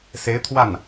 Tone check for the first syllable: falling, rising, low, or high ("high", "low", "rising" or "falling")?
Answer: rising